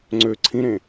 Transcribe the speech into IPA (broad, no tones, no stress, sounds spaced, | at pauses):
ŋ͡ǀ ø ǀʰ ĩ ɾ ẽ